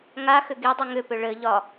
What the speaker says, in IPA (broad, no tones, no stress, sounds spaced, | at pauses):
ŋ a x ʏ ɡ i dˤ ʏ ŋ ʏ p ʏ ɭ ɘ ʎ ɒ